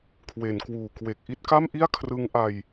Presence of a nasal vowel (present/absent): absent